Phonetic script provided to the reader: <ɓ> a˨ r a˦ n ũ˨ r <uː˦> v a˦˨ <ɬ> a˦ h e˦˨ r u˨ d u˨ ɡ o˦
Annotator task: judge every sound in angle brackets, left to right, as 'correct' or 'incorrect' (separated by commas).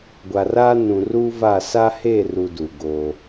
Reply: incorrect, correct, incorrect